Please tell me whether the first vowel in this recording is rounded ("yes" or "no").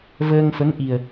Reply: no